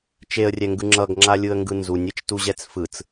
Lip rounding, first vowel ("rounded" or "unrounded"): unrounded